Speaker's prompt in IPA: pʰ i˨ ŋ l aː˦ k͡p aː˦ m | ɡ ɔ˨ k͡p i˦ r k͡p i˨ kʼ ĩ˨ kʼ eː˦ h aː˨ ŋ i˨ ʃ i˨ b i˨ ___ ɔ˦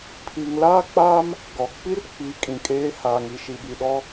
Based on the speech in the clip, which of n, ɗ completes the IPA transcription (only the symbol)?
ɗ